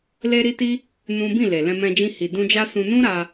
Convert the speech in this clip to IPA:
l e˦ ɾ i˦ t i˦ | n ũ˦ b ĩ˦˨ l e˨ l ɛ̃˧ m ɛ̃˧ d͡ʒ ĩ˧ h i˨ d ũ˧ d͡ʒ a˦ s ũ˧ n ũ˦ ɾ a˧

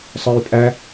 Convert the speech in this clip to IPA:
sˤ ə˞ j pʼ æ

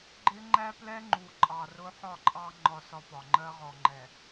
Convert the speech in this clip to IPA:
ɡ͡ǃ ɪ˦ ŋ͡ǃ æ˦ p l ɛ˦ ŋ͡ǃ u˨ ǃʼ ɑ˨ r ʊ˦ ħ ɒ˦˨ ǃʼ ɑ˦ ŋ͡ǃ ɒ˦ s ɒ˦ p ɒ˨ ŋ͡ǃ ɜ˦ ʁ ɔ˨ ŋ͡ǃ ɛ˨

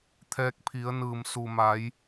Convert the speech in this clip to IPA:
t̪ʰ ɛː˧ k̚ pʰ i˩˧ ə̯ n ɯː˩ m s u˩ m a˩˧ j

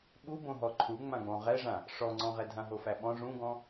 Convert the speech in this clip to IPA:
ɓ u b õ ɦ ɔ ǃʰ u ŋ͡m ã ɡ͡b ɔ̃ ʁ ɛ ʐ ã | ʂ ɔ ŋ͡ǀ ɔ̃ ʁ ɛ dʱ ã ɦ o f æ ɓ ɔ̃ ʐ ũ ɡ ɔ̃

